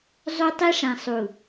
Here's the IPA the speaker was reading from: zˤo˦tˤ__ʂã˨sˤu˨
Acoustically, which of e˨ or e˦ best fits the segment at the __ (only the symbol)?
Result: e˦